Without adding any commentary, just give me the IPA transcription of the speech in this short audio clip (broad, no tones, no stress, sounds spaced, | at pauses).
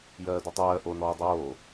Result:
j ɜː d u tˤ ɜː ʔ o n ɔː dˤ oː